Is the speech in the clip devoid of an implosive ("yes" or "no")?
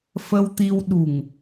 no